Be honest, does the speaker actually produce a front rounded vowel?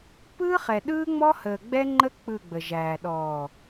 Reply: no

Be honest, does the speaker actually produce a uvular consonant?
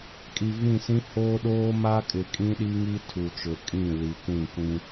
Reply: no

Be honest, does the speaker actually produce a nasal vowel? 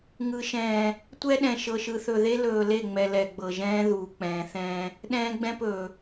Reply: yes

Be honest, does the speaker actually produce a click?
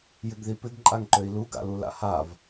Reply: yes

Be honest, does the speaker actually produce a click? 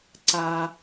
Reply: yes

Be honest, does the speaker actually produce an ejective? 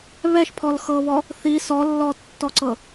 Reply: no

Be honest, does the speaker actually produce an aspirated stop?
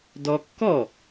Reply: no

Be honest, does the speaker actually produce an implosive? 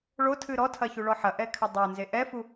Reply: no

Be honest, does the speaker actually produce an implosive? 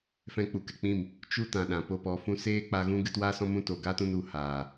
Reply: yes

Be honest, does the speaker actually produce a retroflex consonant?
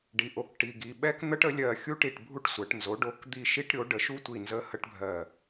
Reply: yes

